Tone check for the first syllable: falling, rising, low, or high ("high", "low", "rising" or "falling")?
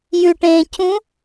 low